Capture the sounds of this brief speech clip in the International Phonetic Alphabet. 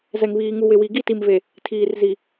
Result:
zɛ˨ŋβiː˨ŋu˨wɪ˨ wi˨ɡi˦˨ti˨mve˨ | tʰiː˨rzi˨

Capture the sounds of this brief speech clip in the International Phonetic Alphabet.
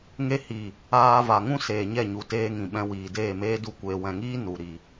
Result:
ŋe˧hi˨ | aː˧va˨ŋũ˦ seː˨ɲɛ˦˨ɲu˨ teː˧ŋĩ˨ɓɛ̃˧wiː˨ deː˦˨meː˦du˦˨ kʷeː˨wɛ̃˨ŋiː˦ nu˨ ɾi˨

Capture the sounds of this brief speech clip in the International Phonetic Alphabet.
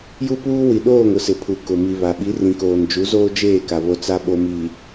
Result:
ju˦puː˦ wi˨ɗoː˦˨ŋ ʊ˦sɪ˨pʰu˨ kʊ˨mi˨βa˨ ɓi˨˦rĩ˨koː˨n d͡ʒu˨˦zoː˦ d͡ʒeː˦˨ka˨ βo˦t͡sa˦ ɓo˨mi˨

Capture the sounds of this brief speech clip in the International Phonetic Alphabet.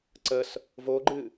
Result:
ǀəs | voɡ͡ǃɨ

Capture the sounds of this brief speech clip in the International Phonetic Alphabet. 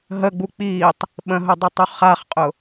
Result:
ɦəɡ͡bu k͡piːtˤ | ɓə̃ɦʊdˤʊtˤu χaχqʼʊ

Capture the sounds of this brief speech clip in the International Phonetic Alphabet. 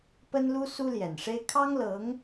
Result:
pə˥nlu˥ su˥ljɛ˨˩nʂe˥ɪ̯ kʰɑ˥ŋlɤ˧˥ŋ

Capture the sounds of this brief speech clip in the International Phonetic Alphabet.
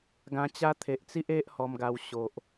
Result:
ɡã˧t͡ɕa˦t̪ʰe˨ʔt͡si˦ʔ e˦ʔ hɔ˧mɡa˧w ɕo˨ʔ

